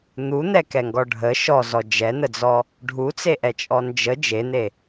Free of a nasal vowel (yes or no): yes